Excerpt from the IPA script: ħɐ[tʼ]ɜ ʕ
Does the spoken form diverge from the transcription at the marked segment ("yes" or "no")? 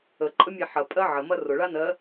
yes